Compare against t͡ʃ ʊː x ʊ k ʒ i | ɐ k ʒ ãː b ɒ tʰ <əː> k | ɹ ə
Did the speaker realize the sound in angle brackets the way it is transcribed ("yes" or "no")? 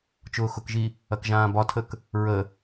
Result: no